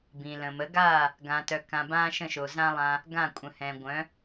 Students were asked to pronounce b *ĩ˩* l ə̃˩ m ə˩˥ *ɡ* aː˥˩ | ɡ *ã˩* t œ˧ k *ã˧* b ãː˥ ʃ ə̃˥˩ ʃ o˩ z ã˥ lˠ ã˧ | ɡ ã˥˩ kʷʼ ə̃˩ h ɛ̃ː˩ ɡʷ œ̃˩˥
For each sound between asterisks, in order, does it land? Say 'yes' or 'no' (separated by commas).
yes, yes, no, yes